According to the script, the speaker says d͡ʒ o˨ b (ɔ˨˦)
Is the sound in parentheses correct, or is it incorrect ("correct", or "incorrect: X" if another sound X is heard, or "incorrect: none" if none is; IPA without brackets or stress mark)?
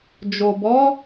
correct